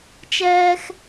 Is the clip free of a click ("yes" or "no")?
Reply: yes